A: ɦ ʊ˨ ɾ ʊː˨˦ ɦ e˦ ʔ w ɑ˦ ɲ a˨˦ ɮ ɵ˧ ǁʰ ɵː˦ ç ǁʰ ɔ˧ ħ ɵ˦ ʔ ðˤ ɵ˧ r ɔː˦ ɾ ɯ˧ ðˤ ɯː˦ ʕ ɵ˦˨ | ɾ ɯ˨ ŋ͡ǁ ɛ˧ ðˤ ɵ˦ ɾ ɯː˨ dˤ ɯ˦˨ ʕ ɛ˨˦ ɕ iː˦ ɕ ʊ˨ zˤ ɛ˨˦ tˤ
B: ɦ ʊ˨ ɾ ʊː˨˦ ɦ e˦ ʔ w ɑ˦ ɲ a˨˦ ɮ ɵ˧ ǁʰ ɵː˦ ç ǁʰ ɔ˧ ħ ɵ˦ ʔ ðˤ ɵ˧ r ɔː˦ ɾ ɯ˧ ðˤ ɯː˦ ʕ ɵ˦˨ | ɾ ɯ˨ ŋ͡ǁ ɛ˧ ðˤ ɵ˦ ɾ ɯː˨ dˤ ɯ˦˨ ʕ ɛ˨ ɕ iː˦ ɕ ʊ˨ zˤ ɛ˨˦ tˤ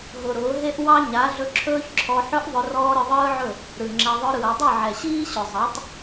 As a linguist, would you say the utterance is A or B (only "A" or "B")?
B